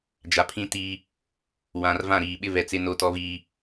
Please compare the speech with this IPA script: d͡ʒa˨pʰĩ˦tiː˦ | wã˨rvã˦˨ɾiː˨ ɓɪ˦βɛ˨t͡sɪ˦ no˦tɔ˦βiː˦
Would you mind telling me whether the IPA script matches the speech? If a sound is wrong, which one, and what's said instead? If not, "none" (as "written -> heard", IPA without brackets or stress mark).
none